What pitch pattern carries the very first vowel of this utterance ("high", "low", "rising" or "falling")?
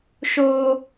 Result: high